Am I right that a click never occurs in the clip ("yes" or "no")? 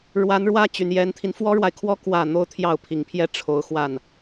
yes